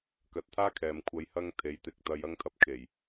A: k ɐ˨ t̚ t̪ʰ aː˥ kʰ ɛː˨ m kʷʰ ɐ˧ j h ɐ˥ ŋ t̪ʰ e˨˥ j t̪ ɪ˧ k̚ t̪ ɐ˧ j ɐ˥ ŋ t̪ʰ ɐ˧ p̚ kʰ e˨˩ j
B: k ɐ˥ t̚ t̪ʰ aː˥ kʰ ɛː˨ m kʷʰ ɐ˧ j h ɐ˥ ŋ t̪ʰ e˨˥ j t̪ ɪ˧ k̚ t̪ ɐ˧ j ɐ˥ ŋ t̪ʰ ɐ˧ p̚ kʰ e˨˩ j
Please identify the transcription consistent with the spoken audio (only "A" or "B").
A